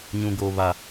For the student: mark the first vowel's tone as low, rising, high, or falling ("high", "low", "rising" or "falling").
high